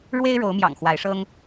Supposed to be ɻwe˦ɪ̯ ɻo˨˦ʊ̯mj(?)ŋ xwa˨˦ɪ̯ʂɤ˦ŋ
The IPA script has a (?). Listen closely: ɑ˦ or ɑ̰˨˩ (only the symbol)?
ɑ̰˨˩